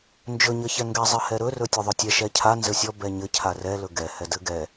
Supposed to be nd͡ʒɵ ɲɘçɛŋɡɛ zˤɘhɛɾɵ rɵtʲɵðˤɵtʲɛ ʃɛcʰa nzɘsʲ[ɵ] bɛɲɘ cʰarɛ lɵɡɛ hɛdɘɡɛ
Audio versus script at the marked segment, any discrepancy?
yes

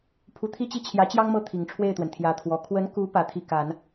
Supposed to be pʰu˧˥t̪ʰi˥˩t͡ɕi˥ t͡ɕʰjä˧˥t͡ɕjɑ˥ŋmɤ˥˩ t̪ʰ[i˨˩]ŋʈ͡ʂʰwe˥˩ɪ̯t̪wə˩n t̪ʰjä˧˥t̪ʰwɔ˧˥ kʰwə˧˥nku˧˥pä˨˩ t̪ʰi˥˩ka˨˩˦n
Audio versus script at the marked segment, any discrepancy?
no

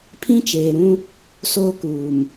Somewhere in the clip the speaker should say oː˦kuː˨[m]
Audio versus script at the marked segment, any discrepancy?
no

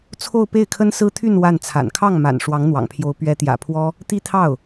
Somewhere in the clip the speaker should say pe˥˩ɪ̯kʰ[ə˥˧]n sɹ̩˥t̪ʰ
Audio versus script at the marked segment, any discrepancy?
yes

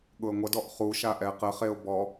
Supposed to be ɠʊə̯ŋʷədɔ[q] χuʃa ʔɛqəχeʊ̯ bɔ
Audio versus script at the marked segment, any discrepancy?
yes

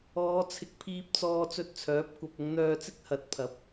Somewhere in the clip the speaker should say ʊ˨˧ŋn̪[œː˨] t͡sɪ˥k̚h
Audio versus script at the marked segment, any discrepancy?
yes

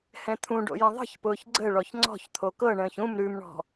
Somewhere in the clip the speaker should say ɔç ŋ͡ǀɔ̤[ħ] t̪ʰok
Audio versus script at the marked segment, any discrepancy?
yes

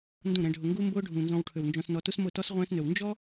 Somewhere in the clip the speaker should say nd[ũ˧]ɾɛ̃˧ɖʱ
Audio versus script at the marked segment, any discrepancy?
yes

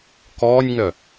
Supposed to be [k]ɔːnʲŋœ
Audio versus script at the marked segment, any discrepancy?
no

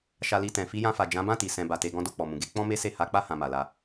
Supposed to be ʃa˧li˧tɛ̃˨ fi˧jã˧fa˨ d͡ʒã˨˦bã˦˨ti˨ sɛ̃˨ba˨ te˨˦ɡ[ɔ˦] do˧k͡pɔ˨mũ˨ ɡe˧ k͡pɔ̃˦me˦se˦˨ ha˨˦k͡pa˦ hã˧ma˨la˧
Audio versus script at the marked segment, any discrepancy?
yes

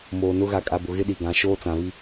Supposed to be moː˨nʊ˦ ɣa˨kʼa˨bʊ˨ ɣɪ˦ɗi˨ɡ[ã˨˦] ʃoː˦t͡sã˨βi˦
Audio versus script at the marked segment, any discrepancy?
no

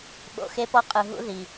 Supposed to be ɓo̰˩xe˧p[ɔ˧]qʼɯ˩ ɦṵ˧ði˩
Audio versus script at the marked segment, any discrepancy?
no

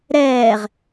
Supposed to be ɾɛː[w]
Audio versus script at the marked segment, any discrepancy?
yes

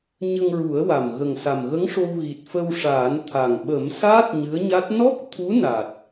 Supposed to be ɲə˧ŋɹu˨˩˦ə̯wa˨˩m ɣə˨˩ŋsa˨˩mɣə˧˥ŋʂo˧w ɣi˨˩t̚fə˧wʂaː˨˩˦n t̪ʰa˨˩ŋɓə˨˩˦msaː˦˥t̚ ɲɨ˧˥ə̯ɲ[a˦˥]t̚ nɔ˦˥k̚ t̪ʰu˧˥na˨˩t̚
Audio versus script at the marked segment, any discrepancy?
no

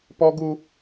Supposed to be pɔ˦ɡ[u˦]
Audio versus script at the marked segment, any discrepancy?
no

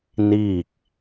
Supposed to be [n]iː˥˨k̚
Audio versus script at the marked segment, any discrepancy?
no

